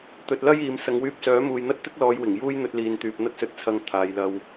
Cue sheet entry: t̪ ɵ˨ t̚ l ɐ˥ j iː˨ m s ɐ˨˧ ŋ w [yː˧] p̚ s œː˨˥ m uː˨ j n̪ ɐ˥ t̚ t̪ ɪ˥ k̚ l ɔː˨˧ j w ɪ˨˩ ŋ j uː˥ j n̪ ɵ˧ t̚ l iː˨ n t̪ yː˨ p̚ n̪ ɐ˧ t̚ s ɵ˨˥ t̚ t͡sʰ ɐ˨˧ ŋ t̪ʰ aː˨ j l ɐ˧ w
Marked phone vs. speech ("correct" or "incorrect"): correct